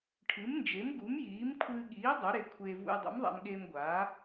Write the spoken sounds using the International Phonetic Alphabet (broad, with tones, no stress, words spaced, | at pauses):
ʈʰɨ˨˥mnd͡ʒe˨˥mɡu˨˥mjiː˨˥m kʷʰɨː˧ɠiː˨˥ dˤʉ˨˥ɾe˧kʷʰeː˧ vṵ˧jdˤṵ˨˥mðˤa̰˧mɠeː˧m ɡʷaː˨˥